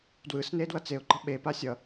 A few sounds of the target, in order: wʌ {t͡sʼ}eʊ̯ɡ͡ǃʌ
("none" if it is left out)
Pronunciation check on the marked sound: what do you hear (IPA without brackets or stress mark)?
t͡s